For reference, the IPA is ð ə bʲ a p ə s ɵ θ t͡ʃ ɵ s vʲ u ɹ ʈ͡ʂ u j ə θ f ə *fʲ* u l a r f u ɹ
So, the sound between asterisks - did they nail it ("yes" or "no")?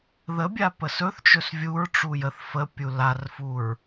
no